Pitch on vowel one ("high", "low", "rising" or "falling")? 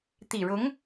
low